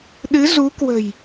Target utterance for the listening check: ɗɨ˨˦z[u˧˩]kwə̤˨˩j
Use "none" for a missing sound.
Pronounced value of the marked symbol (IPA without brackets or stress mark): u˨˦